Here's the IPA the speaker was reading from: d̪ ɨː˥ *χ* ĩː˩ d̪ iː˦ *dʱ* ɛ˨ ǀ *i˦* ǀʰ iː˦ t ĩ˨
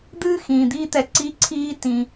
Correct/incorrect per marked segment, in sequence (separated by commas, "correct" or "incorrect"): incorrect, incorrect, correct